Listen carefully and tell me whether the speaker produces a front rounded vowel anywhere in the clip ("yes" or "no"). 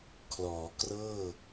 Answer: no